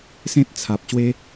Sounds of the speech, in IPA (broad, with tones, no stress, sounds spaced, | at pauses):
s ẽ˦ t̚ t͡sʰ a˨ p̚ ɕ w e˦